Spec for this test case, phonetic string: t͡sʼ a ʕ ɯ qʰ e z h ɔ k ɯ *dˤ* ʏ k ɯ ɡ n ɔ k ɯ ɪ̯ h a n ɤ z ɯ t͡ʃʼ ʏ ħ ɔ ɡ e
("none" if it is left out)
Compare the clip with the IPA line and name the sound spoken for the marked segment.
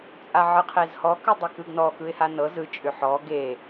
dˤ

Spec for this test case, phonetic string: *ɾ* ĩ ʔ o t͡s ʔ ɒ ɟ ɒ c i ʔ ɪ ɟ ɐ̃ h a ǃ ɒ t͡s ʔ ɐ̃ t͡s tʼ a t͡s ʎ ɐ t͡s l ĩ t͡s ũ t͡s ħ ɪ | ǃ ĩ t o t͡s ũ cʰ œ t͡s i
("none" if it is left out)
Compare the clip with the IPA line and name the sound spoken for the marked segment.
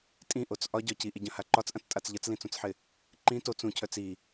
tʼ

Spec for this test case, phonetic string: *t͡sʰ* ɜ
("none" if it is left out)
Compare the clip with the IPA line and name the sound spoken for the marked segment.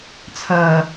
t͡sʰ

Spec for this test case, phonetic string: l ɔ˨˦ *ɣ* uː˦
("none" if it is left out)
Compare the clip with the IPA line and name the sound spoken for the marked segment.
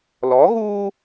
ɣ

